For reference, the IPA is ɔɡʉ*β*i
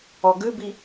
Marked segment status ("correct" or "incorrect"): incorrect